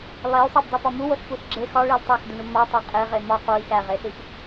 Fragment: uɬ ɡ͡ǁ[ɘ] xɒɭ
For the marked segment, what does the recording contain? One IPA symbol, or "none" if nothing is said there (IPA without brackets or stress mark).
e